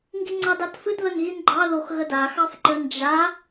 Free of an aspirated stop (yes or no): yes